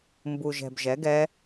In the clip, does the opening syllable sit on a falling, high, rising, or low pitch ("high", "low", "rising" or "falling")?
low